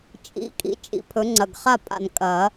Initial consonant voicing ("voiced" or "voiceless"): voiceless